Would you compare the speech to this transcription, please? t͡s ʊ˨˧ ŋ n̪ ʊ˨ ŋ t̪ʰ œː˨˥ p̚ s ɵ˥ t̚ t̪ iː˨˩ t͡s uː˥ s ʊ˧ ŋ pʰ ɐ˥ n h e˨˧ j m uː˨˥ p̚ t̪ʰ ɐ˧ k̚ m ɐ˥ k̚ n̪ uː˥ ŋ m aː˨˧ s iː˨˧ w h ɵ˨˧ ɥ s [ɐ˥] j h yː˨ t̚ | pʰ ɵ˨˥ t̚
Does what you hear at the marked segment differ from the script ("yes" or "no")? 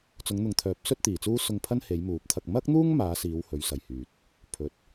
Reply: yes